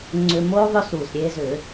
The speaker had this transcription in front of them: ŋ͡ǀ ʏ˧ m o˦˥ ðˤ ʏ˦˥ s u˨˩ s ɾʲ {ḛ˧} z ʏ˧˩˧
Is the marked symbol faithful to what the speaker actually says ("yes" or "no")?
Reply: no